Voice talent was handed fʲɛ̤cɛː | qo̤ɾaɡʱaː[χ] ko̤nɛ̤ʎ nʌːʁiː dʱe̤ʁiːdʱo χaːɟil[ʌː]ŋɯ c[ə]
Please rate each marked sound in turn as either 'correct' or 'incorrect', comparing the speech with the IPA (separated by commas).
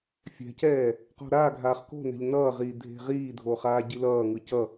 correct, correct, incorrect